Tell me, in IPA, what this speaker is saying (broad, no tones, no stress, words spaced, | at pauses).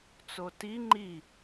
t͡soti ŋ͡ǃi